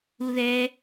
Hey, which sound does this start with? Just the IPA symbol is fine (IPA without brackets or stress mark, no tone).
u